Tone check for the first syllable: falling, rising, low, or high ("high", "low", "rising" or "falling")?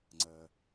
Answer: low